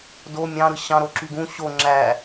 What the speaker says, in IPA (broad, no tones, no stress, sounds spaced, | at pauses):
d o mʲ ɑ̃ ɾ ɯ ɕ ɑ̃ ɾ o ǁ y ɡ ũ ɕ o ŋ͡ǁ æ